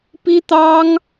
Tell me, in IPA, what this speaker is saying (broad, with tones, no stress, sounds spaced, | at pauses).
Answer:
p i˥ t̪ ɑ˥ ŋ